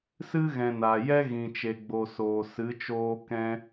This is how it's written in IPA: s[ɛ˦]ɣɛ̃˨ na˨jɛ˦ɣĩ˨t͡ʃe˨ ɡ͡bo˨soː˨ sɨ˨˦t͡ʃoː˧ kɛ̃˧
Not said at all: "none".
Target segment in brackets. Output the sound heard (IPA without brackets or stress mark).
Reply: ɨ˦